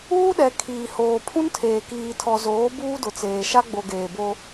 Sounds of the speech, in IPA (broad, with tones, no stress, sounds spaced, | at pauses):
uː˦ ɗ ɛ˨ kʰ iː˨ h oː˨ pʰ ũ˦ n tʰ eː˨ k iː˨ tʰ ɔ˨ z oː˨˦ b uː˦ d ʊ˨ t͡s eː˨ ʃ a˦ ɡ͡b o˨ ɡ eː˨ b o˦